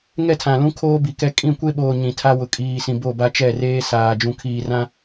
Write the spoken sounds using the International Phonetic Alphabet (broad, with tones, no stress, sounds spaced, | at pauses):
ŋ ɛ˦˨ tʰ ã˨ l ũ˦ kʰ oː˦ b i˨ k ɛ˦ kʼ ĩ˦˨ kʷ e˦ ɓ oː˨ ɲ ĩ˨ tʰ a˦ w ʊ˨ kʼ iː˨ s ĩ˨ b o˦˨ b a˦ t͡ʃ ɛ˦˨ r eː˦ s aː˨ d͡ʒ ũ˨ kʰ iː˨ r ã˦